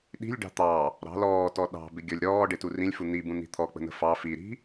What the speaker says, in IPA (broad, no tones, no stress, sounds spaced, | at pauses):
ɗ i̤ lʲ ɖ ɑ̤ t̪ ɑ | ɾ ɑ̤ l ɔː t ɔ ɗ ɑ̤ b ɪ ɡʲ ɔ lʲ ɾ ɔː ɖ ɪ t u r ĩ lʲ f u n̪ i b ũ n̪ i̤ t̪ʰ ɔ k͡p ə̤ n̪ ə̤ f ɑ f i ɾ i̤